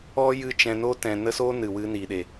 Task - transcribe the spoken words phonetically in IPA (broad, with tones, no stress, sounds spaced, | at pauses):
ɔ˦ j ɨ˦ t͡ʃ ɛ̃˧ n o˦ t ɛ̃˧ n ə˦ s o˦ n ɨ˨ w ɨ˧ n i˨ ɗ e˨